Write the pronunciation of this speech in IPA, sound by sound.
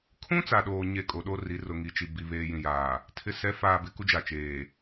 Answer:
kʰ ũ˦ t͡s a˨ ɗ oː˨ ɲ e˨ kʼ o˨ ɗ o˦ r i˨˦ r ʊ˨ ŋ i˨ t͡ʃ i˨ b i˨ β eː˨ j ĩ˨ j aː˨ | tʰ ɪ˨˦ s ɛ˨˦ f aː˨ b ɪ˨ k u˦ d͡ʒ a˨ t͡ʃ eː˨

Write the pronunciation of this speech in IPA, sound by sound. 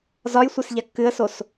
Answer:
z ɒ j sʷ e s ʎ a kː ɨ ə̯ s o s

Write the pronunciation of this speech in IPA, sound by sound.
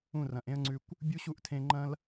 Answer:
ũ˦˨ r ɐ̃˨ ʔ ẽ˦ ə̯ ŋ͡ǀ ʉ˧ kʷ | bʲ u˦ ɕ u˦˨ ʔ tʰ ẽ˧ ŋ͡ǃ ɐ̃˦ l

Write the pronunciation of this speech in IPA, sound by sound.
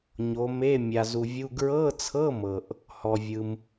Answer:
ɲ o˨˦ m e˧˥˧ mʲ a˨ z u˨ vʲ u˧˥˧ ɡ ɹ ɤ˧˥˧ t͡sʰ ɤ˧˥˧ m ɤ˨ ʔ | h ɔ˨ vʲ ɯ˨ m

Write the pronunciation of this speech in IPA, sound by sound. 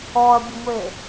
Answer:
ɔ ɐ̯ bʲ ə ŋʷ e

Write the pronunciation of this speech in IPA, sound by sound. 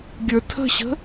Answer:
ɡʲ ə˞ tʰ ə̤ ɕ ə̤

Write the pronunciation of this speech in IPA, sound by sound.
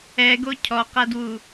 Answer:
ɛ ɡ o cʰ ɔ q a d w u

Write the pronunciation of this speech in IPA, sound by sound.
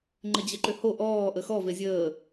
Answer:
ŋ͡ǃ ɘ d͡ʑ ə ǃ ʏ h o ʔ ɔː ʔ ə x ɔ v e zʲ əː

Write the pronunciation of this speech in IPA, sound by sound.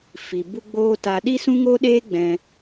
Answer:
f i˨ b u˦ ɡ͡b oː˦ t a˧ ɗ i˦ s ũ˦ ŋ o˦ ɗ eː˦ ɡ͡b ɛ̃˧

